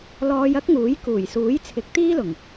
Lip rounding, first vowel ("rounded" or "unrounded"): rounded